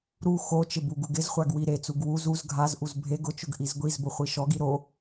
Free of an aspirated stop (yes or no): yes